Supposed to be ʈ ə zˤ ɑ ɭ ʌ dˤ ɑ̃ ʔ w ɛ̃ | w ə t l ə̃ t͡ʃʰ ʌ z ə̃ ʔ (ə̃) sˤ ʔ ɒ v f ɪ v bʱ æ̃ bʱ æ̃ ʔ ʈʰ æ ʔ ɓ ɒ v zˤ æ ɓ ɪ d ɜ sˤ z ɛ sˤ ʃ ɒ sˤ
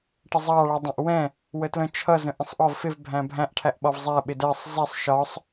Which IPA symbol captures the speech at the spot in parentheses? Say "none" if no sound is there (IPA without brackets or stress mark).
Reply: ə̃